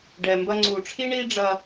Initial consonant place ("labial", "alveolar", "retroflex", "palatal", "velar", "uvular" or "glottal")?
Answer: retroflex